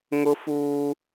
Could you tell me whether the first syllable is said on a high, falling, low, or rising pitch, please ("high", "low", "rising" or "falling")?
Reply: high